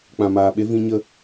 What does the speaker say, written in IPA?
k͡pã˨maː˨ɓe˧ vĩ˧ɲə˧

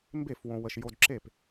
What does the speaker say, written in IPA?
mbe˥˩f wõ˧wə˧ʃ jo˧d ǁe˥˩p

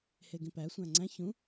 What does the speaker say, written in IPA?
heɡĩpæ sʷæ̃ŋ͡ǀæ̃ çũ

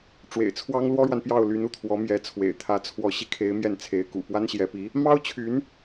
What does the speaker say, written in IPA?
ʈ͡ʂwḛ˨˩ɪ̯t͡sʰwɑ˥ŋ lwɔ˥ɻwa˨npjɑ˥˩ʊ̯ly˧˥n u˥˩t̪ʰwɔ˧˥ mjɛ˧˥t͡sʰwḛ˨˩ɪ̯t̪ʰä˧˥ t͡sʰwɔ˧˥ɕi˧kʰe˧˥ɪ̯ mjɛ˥˩nt͡sʰe˧˥ɪ̯kṵ˨˩ pwa˥nɕjɛ˧˥pi˧˥ | mɑ˥ʊ̯t͡ɕʰy˧˥n

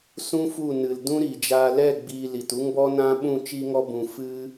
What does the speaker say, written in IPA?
sũ˦fu˦˨nɨ˨l dũ˦ɾi˨d͡ʒaː˧ lɛ˦˨ ɡ͡biː˧li˨t u˦ŋbɔ˦nã˦ ɓũ˦˨ t͡ʃi˧ŋɔ˧bũ˨ fɨ˧

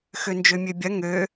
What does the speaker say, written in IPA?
xønd͡ʒømʲøbʲɐ ŋø

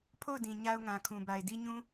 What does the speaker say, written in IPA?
pʰo˦˨ʊ̯dĩ˨ ɲa˦ʊ̯ŋã˨kʰũ˨ba˨ɪ̯ di˦ɲũ˦

